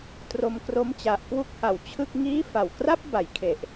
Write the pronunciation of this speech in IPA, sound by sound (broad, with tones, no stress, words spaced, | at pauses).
tro˧mkro˦˥mt͡ɕa˨˩ʔ kwu˥˩k̚ha˨˩w t͡ɕʰɯ˥˩k̚ŋiː˥˩ fa˨˩w kra˥˩p̚ ba˩˦jkʰe˨˩ʔ